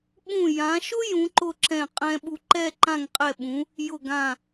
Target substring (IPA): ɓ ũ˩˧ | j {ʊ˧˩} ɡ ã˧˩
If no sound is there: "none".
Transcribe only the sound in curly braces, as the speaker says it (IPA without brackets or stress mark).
ʊ˧˩